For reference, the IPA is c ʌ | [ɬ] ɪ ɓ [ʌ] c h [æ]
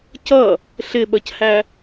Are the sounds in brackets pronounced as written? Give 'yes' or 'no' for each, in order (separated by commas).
yes, yes, yes